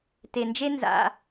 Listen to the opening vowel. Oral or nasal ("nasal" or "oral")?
oral